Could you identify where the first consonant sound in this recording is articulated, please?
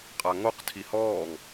uvular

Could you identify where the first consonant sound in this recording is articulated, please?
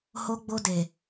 glottal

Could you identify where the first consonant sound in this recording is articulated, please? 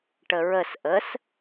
retroflex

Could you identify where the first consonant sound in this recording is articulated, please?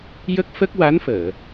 palatal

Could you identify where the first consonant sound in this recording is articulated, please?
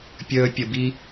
labial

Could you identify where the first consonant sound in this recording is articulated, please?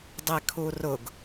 alveolar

